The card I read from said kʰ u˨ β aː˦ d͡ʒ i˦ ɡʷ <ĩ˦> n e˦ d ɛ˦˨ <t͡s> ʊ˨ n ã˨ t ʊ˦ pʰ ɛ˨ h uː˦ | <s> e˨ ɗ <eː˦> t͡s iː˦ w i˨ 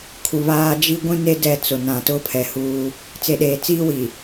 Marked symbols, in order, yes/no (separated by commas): yes, yes, no, no